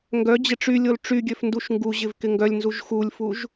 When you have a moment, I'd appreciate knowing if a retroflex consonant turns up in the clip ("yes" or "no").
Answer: yes